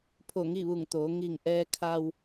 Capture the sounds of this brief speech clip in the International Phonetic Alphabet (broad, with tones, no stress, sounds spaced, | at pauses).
pʰ o˧˩ ŋ i˥˨ ʋ u˧˩ ŋ t̪ oː˩˧ ŋ i˧˩ ŋ ʔ ɛː˧ kʰ a˧ w